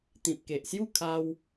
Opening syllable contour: low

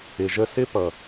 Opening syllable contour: low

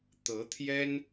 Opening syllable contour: rising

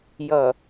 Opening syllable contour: low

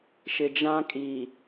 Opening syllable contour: low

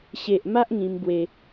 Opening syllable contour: low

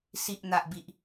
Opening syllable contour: low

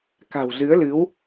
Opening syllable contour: low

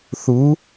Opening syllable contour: rising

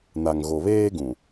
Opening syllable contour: low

